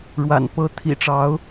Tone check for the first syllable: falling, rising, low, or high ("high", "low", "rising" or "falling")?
low